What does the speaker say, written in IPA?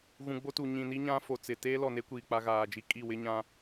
ɣ ũ˨ ɡ͡b o˦ t u˨ ɲ ĩ˨ n i˦ ɲ ã˦ f o˨ t͡s ɪ˨ t eː˦ l ɔ˨ n e˦ kʷ iː˨ k͡p a˦ ɣ aː˨ d͡ʒ i˦ kʼ i˦˨ w ɪ˦ ɲ ã˦

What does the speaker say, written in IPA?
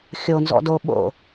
xʲ o n z ɔ̰ d o ɓ o̰

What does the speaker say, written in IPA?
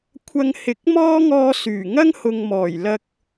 kʷʰ ɐ˧ ŋ h ɪ˨˥ k̚ m ɔː˥ ŋ ɔː˧ s yː˨˩ ŋ ɐ˥ ŋ h ʊ˨ ŋ m ɔː˨˩ j l ɐ˧ k̚

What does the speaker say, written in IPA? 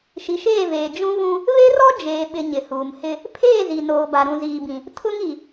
ʃ i˨ ʃ eː˦˨ v eː˨ d͡ʒ ũ˦ ɣ ũ˦ | β e˦ r ɔ˦ d͡ʒ eː˨ ɓ ɪ˨ ɲ ɪ˨ h uː˨ m h ɪ˦ | pʰ eː˦˨ z i˨ n oː˨ b a˨ ɾ ũ˨ z iː˨ b ĩ˨ | tʰ ʊ˦ ŋ i˨

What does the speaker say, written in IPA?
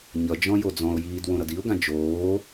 ɲ ʌ d͡ʒ ɔ̃ j o d͡z ɔ̃ ʊ̯ j iː d w õ ɾ ʌ d i ʊ̯ ɡ ã d͡ʒ oː

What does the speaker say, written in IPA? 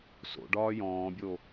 s o̰ ɖ ɒː j ɔ̃ː bʲ o

